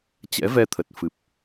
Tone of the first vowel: rising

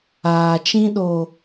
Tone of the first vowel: low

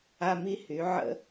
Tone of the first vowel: high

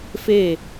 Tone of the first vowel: falling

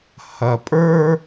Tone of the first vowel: low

